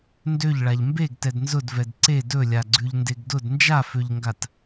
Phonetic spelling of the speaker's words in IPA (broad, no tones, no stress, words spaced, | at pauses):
ndøʎɭaʎ mbeɡtɛd nzʊdvɛd ǀe dɵlʲaɡ͡ǀʉʎndeɡ dʊd nd͡ʒaføʎŋɡat